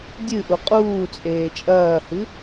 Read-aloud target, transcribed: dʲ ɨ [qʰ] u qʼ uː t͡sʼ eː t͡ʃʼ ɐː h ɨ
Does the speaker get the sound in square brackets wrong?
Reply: yes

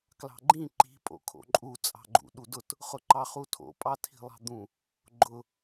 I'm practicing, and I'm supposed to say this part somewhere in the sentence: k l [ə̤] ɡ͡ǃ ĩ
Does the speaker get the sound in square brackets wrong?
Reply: yes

